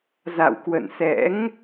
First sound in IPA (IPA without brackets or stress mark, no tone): z